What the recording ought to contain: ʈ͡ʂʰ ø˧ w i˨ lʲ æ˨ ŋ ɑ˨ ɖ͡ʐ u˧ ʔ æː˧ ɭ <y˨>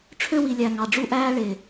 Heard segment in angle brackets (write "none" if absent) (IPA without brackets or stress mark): e˨